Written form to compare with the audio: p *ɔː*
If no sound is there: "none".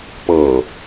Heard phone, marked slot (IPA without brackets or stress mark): ɤː